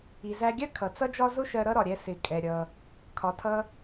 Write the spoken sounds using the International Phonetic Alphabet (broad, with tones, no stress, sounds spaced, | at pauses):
i˩ z æ˧ ɡʲ ɜ˥ kʰ ʌ˩ t͡s ʌ˥ d͡ʒ ɒ˥ z ʊ˥ ʃ ɜ˧ ɾ ʌ˥ ɾ ɒ˩ ɾʲ ɛ˧ s ɪ˩ kʼ ɛ˩ ɾʲ ʌ˩ | kʰ ɒ˩ tʰ ʌ˧